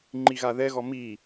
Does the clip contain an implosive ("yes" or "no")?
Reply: no